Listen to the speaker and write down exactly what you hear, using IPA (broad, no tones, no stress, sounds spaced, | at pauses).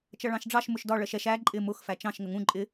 t͡ʃ ʌ ɭ ɑ̃ ʃ ɖ͡ʐ ɑ ʃ m ʊ ʃ d ɒ ɭ ɜ ʃ ɛ ʃ æ ǃʼ ɪ m ʊ x f æ t͡ʃ ɑ̃ ʃ ŋ ə ŋ ũ ǃʼ ɪ